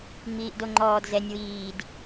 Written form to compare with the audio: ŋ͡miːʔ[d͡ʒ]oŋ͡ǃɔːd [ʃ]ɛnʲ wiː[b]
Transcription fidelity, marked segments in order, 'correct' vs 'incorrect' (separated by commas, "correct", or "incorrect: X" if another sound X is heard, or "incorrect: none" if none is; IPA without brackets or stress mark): incorrect: d, incorrect: z, incorrect: d